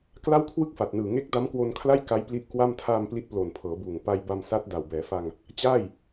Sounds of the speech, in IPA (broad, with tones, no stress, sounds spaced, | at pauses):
k l a˥˩ w kʰ w ɯ˥˩ k̚ f a˨˩ t̚ n ɯː˨˩ ŋ e˦˥ k̚ d a˦˥ m k w o˧ n kʰ l a˥˩ j k a˦˥ j p l i˦˥ ʔ k w a˥˩ m tʰ aː˧ m p l i˦˥ t̚ p l o˨˩ n pʰ ɤː˩˦ b uː˨˩ ŋ p a˧ j b a˧ m s a˦˥ t̚ d a˨˩ w b ɛː˩˦ f a˧ ŋ | t͡ɕ aː˥˩ j